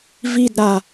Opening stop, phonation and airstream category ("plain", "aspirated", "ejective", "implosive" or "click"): plain